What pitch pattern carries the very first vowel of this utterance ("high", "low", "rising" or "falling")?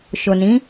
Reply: low